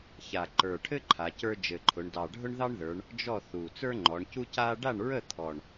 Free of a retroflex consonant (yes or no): no